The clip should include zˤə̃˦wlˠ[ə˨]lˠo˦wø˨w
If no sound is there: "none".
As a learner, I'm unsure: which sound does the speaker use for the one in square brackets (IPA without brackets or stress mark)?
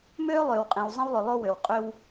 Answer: ʏ˨